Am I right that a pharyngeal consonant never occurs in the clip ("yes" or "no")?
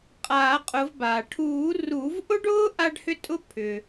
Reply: yes